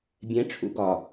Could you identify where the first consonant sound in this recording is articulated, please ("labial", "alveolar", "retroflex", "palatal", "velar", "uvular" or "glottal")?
labial